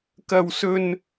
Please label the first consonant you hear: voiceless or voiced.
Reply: voiceless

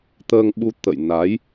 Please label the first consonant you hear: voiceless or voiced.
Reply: voiceless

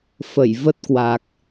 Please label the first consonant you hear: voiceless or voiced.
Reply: voiceless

